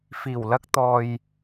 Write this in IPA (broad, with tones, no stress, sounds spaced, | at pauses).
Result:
f iː˨˩ w l ɐ˧ k̚ t̪ ɔː˨ j